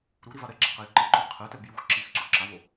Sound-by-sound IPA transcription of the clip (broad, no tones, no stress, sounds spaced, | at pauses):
ɾ u ɾ i v a ɾ ɛ ɡ͡ǁ a q ɛ j ǃ ɪ ǃ ʊ ɾ ɪ qʰ ɛ t ɛ b j u x ǁ i x ǀ u ǁ a v o